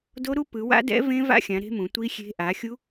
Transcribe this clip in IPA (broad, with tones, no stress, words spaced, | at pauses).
do˦˥ ɾu˦˥pɯ˨˦wa̰˦˥ dɛ̰˦˥ vẽ˦˥va̰˦˥xʲã˨˦ ɾe̤˦˥mũ˨˦ tʷi˦˥xʲe̤˦˥ ʔa˨˦xʲu˦˥